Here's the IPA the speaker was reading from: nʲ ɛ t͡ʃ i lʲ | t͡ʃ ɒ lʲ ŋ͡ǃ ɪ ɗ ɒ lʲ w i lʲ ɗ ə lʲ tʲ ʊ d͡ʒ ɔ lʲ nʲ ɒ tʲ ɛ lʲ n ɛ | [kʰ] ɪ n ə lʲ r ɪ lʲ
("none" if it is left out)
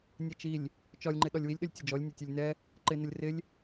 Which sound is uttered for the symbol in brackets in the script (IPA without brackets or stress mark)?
ǃ